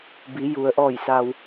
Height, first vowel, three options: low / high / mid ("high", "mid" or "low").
high